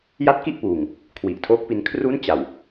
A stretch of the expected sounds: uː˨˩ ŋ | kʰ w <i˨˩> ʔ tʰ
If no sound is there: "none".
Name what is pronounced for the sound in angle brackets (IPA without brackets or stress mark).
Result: i˨˩